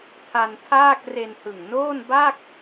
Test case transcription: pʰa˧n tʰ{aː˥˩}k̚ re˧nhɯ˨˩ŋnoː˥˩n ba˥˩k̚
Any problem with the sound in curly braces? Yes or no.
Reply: no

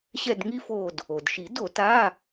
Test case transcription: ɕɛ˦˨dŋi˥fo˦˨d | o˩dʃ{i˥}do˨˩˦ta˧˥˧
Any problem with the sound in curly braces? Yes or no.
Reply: yes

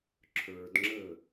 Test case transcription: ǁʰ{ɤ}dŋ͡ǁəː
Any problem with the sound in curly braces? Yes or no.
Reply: yes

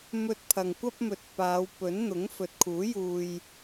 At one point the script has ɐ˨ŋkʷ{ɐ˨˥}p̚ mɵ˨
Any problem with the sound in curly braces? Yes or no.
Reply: yes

